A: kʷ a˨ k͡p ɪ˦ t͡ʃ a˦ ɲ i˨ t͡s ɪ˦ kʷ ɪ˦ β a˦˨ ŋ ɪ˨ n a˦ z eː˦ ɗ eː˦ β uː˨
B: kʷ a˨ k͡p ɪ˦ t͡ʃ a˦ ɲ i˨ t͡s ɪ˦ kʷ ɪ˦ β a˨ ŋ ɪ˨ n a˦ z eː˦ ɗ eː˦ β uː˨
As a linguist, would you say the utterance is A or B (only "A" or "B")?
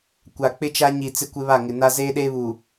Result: A